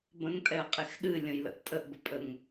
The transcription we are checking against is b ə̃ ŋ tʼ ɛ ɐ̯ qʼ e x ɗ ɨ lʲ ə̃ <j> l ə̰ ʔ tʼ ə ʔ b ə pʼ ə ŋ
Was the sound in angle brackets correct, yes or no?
yes